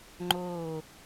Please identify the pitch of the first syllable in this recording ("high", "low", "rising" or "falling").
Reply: falling